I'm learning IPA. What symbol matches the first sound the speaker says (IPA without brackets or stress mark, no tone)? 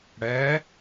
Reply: ɽ